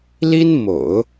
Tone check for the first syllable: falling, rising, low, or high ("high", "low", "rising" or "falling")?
high